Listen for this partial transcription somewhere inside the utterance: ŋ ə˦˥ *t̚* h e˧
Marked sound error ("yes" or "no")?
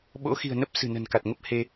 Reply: yes